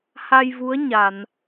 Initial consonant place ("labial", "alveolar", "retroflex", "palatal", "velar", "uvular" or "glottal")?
glottal